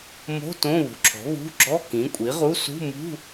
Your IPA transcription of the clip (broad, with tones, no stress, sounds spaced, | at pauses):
m o̤˧˥˧ t õ˧˥˧ β ṳ˩˥ ǁʰ ɔ̤˩˥ β ṳ˧˥˧ ɡ͡ǁ ɔ˧˥˧ k ĩ˩˥ kʷʼ i˩˥ ʁ u˧˥˧ s ṳ˧˥˧ m ṳ˧˥˧